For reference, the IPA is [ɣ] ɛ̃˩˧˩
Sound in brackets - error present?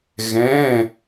no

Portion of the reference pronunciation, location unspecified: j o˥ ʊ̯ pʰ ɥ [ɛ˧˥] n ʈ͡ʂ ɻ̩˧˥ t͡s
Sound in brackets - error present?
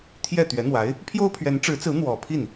no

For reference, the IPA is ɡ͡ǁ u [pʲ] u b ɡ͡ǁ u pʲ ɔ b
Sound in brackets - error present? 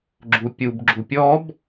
no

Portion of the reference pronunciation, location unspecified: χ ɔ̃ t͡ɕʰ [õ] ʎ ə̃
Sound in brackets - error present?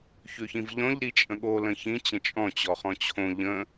no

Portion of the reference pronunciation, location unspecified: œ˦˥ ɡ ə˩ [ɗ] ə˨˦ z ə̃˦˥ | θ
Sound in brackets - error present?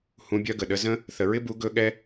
no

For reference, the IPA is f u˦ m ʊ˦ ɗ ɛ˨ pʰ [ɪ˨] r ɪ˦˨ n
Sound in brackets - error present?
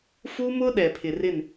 no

